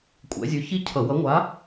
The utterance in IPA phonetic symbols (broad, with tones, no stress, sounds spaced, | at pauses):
kʷʼ ɛ̰˨˦ zʲ ʉ˨˦ ç i˥˧ cʰ ʌ˧˩˧ w ʌ˨˦ ŋʷ a˨˦